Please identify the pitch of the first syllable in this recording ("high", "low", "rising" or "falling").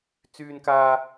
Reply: high